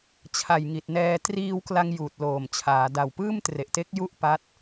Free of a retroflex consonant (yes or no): yes